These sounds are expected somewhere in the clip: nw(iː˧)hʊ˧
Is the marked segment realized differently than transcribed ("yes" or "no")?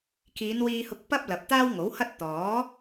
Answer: no